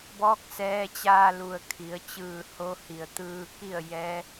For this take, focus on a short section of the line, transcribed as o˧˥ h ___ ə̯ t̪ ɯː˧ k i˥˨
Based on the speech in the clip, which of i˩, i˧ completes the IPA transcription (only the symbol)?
i˩